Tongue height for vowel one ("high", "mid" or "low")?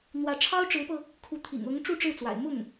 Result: low